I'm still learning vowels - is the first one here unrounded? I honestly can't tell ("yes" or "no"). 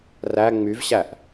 yes